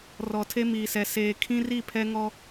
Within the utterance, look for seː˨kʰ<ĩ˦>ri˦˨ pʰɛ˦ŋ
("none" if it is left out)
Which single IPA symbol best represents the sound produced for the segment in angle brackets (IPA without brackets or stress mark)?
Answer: ĩ˦